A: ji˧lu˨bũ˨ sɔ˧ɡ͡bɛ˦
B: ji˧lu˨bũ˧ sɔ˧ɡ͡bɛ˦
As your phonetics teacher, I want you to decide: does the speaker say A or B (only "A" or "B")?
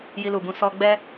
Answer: B